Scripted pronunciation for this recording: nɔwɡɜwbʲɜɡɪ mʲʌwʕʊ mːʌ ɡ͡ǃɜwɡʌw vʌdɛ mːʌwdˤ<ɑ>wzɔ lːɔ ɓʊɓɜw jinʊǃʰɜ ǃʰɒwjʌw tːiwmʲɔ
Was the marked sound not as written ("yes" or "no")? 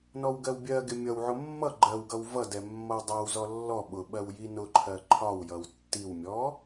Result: no